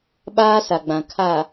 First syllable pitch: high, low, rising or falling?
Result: high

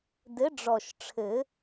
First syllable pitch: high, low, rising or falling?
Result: rising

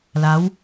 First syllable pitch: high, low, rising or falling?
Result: rising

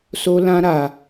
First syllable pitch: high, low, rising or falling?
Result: high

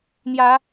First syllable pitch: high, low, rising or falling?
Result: rising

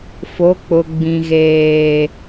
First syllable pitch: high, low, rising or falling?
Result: rising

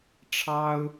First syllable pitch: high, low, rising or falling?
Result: high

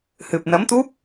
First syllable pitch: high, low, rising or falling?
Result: low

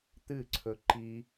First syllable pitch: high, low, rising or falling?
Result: falling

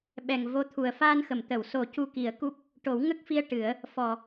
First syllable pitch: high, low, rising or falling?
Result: low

